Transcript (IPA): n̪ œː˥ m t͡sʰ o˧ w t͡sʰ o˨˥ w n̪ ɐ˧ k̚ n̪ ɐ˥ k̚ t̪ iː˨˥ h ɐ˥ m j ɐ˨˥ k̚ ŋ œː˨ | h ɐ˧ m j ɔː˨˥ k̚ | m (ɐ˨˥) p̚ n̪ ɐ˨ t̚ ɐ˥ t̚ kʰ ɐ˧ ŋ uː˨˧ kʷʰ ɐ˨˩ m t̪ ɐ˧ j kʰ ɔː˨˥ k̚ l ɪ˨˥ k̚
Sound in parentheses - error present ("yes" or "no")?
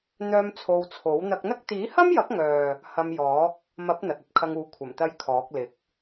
no